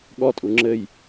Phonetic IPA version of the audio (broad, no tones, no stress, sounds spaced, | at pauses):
ɠ ɔ tʼ u ŋ͡ǁ ɘ j